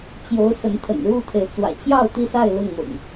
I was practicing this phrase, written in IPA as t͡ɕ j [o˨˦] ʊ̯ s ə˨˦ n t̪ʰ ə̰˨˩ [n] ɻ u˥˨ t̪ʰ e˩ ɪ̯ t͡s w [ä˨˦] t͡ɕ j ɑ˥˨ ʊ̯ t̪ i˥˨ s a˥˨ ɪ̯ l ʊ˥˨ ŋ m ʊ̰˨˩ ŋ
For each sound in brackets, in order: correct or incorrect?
correct, correct, incorrect: ä̰˨˩

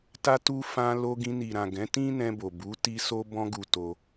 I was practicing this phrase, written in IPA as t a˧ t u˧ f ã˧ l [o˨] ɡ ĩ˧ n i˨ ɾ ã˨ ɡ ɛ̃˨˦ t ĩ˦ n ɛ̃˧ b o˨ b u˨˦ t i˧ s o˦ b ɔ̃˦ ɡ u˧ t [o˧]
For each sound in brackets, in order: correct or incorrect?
incorrect: o˧, correct

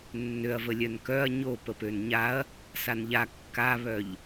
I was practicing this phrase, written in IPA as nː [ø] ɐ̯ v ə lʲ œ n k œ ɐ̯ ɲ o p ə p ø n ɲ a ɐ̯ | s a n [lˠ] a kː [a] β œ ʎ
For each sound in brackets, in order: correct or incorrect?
correct, incorrect: ʎ, correct

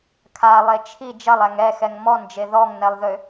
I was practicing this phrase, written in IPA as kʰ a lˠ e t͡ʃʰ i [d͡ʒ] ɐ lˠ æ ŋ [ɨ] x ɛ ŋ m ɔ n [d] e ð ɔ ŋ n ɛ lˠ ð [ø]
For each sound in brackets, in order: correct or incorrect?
correct, incorrect: ɛ, incorrect: d͡ʒ, correct

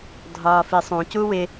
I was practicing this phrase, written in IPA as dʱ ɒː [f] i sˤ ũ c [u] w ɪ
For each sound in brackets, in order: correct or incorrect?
correct, correct

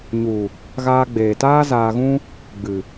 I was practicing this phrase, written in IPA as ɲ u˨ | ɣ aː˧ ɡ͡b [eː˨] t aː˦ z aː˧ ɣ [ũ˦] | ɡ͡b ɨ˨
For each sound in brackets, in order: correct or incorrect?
correct, correct

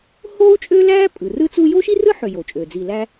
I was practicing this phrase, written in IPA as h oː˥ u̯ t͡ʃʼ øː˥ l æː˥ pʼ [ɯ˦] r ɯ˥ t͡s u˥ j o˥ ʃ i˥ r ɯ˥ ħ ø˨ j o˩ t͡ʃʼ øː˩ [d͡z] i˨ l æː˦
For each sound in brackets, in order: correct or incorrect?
incorrect: ɯ˩, correct

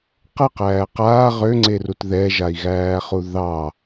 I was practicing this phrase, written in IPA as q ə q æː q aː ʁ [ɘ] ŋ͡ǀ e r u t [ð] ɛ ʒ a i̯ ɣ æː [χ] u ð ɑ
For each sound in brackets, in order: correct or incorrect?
incorrect: ø, correct, correct

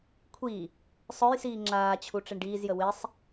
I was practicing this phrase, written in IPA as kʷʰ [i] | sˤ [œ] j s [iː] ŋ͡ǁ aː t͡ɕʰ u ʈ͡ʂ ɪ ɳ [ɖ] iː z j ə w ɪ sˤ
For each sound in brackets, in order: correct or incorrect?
correct, correct, correct, correct

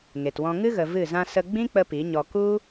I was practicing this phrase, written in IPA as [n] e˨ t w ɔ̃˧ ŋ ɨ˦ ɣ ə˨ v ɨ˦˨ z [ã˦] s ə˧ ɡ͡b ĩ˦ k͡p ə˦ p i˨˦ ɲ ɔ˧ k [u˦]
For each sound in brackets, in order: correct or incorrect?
incorrect: ŋ, correct, correct

